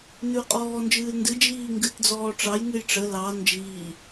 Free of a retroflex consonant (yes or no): no